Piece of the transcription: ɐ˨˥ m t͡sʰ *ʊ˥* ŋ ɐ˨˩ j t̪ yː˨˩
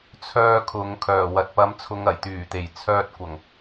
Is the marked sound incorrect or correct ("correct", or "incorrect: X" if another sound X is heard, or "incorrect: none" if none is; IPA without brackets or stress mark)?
incorrect: ʊ˨˧